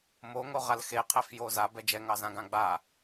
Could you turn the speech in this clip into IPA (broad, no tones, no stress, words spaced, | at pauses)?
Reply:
moŋoʁal xeqʰɛfjo zabɛ d͡ʒɛŋɑzãɡã ɡ͡ba